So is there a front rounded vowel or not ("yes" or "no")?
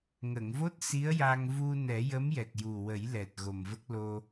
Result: no